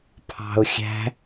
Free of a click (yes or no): yes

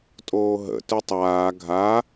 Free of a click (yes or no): yes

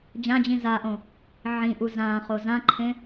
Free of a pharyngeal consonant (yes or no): no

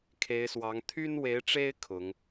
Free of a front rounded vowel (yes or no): no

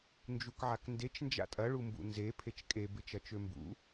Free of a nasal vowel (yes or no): yes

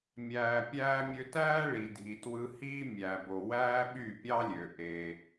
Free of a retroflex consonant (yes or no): no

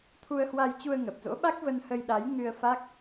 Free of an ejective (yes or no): yes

